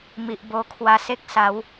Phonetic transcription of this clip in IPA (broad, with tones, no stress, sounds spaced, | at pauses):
m i˨ ʔ b o˧ kʰ w a˧ s e˦ k̚ s a˨˦ w